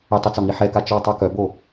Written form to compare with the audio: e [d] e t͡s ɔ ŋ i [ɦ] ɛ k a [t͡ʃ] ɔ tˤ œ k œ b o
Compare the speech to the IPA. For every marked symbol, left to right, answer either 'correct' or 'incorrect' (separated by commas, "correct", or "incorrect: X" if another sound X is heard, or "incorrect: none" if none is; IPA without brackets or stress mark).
incorrect: tˤ, incorrect: ħ, correct